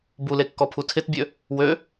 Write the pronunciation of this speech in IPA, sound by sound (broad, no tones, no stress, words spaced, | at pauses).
bulekːɔpʰu tʰɪtbʲø | wø